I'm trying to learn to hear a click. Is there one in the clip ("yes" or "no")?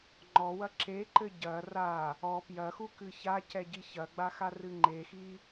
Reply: yes